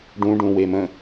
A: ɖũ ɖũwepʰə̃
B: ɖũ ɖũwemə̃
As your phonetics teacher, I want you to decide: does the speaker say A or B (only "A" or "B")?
B